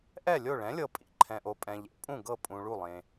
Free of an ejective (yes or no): no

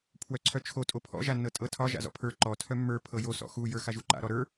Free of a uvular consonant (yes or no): yes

